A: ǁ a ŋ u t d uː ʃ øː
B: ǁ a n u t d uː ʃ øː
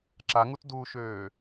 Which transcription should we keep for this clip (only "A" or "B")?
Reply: A